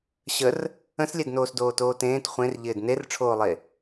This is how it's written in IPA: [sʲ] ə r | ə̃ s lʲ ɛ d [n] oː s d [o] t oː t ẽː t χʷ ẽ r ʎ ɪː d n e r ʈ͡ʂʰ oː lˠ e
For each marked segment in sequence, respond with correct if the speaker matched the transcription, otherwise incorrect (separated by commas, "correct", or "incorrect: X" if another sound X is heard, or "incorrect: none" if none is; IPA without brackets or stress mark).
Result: incorrect: ɕ, correct, incorrect: oː